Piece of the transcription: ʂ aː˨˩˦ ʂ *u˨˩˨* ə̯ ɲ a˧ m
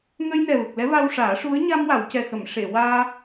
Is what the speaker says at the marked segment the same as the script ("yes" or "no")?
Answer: no